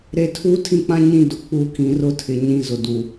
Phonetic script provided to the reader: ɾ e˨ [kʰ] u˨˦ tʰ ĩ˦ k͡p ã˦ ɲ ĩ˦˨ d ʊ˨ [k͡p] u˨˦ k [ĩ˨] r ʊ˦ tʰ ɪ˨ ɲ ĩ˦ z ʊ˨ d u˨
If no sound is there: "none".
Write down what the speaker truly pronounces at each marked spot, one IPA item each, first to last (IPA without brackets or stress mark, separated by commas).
tʰ, k͡p, ĩ˨